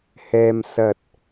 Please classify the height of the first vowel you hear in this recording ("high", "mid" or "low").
mid